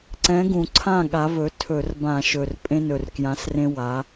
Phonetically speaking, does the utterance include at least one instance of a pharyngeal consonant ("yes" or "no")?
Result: no